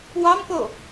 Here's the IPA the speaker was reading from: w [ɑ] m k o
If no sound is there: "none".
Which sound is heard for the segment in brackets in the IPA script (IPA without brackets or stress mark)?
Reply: ɑ